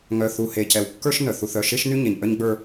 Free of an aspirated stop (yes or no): yes